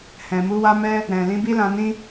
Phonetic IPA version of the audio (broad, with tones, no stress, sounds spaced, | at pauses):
h ɛ̃˨ m u˨˦ w a˦ m ɛ˦ | ɾ ɛ̃˨ l ĩ˨˦ b i˦ l ã˧ n ĩ˦